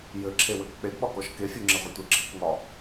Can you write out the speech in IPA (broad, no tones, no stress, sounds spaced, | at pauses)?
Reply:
j ɘ ǁʰ e w ɘ k k͡p e ɡ ɓ ɒ k ɔ ʃ k e fʲ u ŋ͡ǁ e ʁʷ ɘ tʷ ɘ ǁʰ i k ŋ ɒ